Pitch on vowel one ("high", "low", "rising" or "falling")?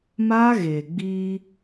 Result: high